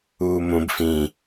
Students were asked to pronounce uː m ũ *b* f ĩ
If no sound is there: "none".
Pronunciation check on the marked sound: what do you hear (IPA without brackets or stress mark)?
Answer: b